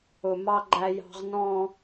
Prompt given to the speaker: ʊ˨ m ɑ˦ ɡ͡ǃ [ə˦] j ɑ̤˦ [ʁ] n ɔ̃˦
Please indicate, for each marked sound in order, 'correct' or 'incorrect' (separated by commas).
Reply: incorrect, correct